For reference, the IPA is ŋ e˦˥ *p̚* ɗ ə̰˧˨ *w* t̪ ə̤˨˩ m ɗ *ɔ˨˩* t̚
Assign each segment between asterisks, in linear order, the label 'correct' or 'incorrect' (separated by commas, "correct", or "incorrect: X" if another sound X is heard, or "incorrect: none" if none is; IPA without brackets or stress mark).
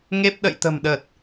correct, incorrect: j, incorrect: ə˨˩